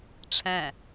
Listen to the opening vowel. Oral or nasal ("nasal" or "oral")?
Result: nasal